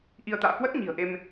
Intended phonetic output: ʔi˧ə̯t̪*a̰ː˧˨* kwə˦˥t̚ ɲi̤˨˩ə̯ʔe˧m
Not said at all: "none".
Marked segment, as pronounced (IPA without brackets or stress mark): a̰ː˧˨